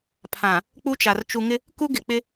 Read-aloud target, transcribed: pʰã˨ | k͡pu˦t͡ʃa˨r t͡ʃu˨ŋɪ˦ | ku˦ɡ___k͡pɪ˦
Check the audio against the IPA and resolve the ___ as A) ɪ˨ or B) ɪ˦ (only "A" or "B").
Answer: A